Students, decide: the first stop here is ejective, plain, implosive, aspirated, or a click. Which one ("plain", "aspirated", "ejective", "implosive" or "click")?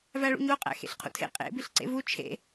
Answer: ejective